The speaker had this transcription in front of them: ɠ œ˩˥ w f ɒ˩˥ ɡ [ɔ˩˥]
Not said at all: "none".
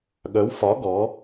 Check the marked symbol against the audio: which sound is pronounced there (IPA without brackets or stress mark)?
ɔ˩˥